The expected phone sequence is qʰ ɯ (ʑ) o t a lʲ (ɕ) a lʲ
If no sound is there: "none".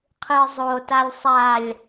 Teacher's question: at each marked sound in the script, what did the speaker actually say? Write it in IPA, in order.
zˤ, sˤ

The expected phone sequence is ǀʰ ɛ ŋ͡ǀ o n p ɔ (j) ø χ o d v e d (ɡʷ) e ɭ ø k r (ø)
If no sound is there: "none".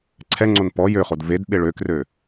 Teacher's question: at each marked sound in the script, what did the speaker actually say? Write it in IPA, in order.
j, ɓ, ø

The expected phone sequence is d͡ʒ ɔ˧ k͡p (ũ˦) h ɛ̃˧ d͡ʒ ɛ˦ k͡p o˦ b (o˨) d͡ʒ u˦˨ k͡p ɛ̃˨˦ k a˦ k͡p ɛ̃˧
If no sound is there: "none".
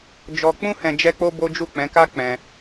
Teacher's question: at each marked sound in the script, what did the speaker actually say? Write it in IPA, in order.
ũ˦, o˦

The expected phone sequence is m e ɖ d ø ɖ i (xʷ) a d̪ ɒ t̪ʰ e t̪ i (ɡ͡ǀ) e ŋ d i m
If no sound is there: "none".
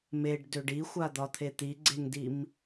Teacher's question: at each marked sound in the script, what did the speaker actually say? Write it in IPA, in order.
xʷ, ɡ͡ǀ

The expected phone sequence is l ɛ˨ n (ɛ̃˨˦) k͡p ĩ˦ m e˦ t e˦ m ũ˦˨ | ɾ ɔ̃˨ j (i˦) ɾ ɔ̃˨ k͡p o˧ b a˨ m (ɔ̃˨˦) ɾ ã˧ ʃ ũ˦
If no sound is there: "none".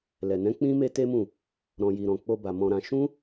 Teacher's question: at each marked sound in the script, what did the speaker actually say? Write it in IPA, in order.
ɛ̃˨˦, i˨, ɔ̃˧

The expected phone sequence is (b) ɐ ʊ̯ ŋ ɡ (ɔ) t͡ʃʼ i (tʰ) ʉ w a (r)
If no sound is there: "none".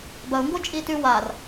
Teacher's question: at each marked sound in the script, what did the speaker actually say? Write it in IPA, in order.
b, o, t, r

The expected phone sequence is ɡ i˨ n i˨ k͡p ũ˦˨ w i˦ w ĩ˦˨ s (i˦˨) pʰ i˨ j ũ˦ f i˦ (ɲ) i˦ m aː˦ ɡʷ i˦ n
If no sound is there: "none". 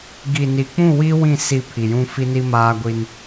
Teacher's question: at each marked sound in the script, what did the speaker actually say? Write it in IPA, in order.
i˦˨, n

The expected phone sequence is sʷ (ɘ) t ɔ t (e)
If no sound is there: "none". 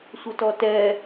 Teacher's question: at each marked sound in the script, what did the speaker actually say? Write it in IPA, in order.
ɘ, ɛ

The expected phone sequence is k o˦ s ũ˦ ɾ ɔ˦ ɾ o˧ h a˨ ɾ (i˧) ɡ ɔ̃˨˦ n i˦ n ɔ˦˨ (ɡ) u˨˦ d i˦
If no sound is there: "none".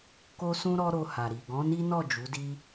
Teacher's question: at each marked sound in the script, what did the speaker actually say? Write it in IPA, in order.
i˨, d͡ʒ

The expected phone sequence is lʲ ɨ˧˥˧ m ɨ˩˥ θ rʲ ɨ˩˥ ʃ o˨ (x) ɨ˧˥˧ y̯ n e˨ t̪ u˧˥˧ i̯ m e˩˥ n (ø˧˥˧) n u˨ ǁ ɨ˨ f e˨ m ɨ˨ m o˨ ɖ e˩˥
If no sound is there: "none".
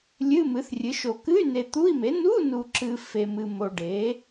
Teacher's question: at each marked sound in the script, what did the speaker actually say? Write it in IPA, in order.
k, u˧˥˧

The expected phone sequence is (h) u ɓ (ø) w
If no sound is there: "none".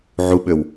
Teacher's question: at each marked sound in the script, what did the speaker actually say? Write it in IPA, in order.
ʕ, ø

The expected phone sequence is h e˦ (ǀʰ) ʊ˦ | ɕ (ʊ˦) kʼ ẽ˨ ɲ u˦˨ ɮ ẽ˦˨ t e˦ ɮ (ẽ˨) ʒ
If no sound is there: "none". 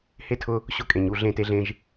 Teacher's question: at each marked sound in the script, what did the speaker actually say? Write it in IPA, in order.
tʰ, ʊ˦, ẽ˦

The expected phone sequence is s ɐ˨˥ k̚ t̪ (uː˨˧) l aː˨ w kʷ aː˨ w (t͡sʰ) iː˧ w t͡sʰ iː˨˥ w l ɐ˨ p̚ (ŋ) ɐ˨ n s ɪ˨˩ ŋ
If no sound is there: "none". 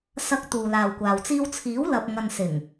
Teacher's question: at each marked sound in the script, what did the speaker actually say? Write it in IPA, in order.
uː˨, t͡s, ŋ

